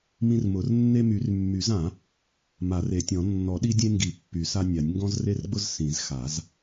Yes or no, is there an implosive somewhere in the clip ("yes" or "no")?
yes